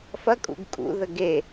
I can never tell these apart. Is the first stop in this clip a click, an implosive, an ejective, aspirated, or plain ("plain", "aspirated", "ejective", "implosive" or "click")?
ejective